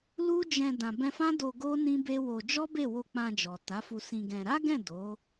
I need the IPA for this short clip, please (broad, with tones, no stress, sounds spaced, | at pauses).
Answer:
l u˦ d͡ʒ ɛ̃˧ d ã˨ b ɛ̃˧ f ã˦ d o˧ ɡ o˦ n ĩ˦ b e˦ w o˧ d͡ʒ ɔ˦ b e˦˨ w o˧ k͡p ã˧ d͡ʒ ɔ˨ t a˨˦ f u˧ s ĩ˧ ɡ ɛ̃˧ ɾ a˦ ɡ ɛ̃˦˨ d o˨˦